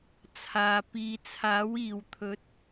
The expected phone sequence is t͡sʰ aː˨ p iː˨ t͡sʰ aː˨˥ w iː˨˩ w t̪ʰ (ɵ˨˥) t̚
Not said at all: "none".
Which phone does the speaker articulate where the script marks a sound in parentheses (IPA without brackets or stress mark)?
ɵ˨˥